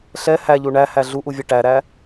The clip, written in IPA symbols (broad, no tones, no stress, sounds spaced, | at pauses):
ɬ ɛ h æ ʎ u ɳ æ h æ ɮ u ʔ u vʲ ɛ ʈ æ ɾ æ